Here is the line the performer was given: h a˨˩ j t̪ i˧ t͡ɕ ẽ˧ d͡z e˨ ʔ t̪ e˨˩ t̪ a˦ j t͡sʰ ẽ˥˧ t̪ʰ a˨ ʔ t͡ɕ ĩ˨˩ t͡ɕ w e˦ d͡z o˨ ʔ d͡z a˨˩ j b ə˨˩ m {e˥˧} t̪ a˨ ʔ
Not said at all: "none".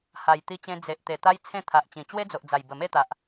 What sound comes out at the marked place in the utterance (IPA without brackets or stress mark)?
e˥˧